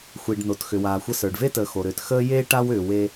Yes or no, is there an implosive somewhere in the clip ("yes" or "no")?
no